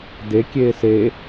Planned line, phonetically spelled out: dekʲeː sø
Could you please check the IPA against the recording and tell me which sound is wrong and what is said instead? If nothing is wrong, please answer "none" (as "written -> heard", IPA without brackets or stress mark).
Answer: ø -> e